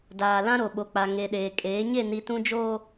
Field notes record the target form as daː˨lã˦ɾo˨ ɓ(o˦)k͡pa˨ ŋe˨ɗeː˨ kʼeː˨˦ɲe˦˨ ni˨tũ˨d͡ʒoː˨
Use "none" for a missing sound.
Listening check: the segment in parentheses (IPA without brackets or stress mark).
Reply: o˨